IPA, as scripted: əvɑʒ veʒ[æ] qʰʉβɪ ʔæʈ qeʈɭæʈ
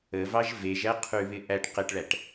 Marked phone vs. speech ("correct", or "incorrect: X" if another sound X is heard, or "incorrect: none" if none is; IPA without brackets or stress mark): correct